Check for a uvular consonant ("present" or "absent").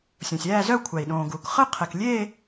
present